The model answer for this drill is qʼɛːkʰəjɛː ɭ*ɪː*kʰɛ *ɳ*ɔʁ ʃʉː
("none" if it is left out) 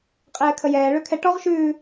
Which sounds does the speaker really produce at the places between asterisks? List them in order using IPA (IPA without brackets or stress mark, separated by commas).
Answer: ʏː, ʈ